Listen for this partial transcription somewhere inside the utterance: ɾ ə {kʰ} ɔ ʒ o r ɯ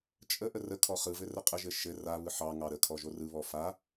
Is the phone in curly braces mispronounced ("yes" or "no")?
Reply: no